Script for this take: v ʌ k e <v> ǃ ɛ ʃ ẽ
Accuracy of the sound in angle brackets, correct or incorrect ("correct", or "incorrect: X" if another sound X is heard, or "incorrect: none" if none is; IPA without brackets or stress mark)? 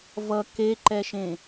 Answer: incorrect: none